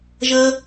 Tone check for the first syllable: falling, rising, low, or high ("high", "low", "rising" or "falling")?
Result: high